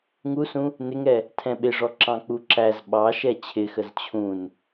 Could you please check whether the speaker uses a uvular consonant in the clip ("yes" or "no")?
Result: no